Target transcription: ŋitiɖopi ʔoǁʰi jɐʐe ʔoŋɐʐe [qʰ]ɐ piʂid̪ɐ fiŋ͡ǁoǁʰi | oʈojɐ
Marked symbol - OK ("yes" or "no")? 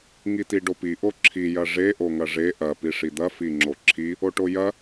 no